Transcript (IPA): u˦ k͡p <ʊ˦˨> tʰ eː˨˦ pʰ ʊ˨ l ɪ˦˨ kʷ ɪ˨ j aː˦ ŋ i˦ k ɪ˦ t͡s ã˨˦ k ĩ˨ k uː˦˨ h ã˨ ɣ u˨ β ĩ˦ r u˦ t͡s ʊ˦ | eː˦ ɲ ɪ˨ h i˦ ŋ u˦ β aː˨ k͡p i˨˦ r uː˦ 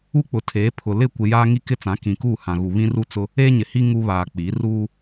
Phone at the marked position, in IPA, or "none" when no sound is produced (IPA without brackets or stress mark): ʊ˨